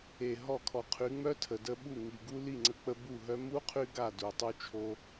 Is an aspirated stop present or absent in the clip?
present